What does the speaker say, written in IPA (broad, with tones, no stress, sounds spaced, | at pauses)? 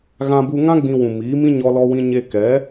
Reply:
ɣ ã˧ b u˧ ŋ ã˦ ɡ͡b ĩ˧ w ũ˨ m iː˨˦ m ĩ˦ ɲ ɔ˧ l ɔ˧ w ĩ˧ ɲ e˧ k ɛ˨˦